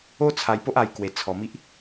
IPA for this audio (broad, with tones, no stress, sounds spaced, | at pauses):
o˦ t͡sʰ a˧ j p o˦ ʔ a˧ j k w e˧ t͡sʰ ɔ˧ m i˦ ʔ